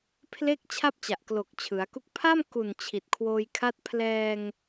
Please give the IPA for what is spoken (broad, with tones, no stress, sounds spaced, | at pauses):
pʰ l e˥˩ k̚ t͡ɕʰ a˥˩ p̚ t͡ɕ a˨˩ ʔ k l o˨˩ k̚ t͡ɕʰ ɯ˩˦ a̯ k u˥˩ k̚ pʰ a˥˩ m k u˨˩ n t͡ɕʰ i˨˩ t̚ kʰ w oː˧ j kʰ a˦˥ t̚ pʰ l ɛː˧ ŋ